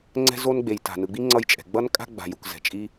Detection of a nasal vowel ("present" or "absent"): absent